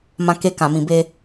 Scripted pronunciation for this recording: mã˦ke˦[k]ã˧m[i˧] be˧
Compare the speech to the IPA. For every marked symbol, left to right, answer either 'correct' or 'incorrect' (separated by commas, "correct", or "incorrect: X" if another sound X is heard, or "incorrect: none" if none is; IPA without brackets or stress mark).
correct, incorrect: ĩ˧